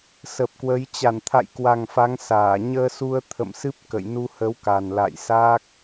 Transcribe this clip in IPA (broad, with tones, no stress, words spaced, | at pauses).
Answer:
sə˨˩p̚kwə˨˦j t͡ɕa˧˩nt̪ʰa̰˧˨jkwa˨˩ŋ fa˨˦ŋsaː˧˩ ɲəː˧su˧ə̯ t̪ʰə̰˧˨msɨ˦˥p̚ kə̰˧˨j nu˧hə˨˦wka˨˩n la̰˧˨jsaː˦˥k̚